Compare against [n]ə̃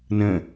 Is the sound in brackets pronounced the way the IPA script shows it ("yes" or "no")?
yes